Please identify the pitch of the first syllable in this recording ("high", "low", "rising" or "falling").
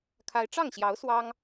rising